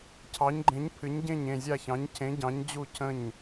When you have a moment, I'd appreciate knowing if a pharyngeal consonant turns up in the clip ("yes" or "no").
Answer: no